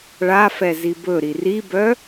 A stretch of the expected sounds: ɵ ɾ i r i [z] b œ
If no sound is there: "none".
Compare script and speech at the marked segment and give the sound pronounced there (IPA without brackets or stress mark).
none